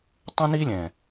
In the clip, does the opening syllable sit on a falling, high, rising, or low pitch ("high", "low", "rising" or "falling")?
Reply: high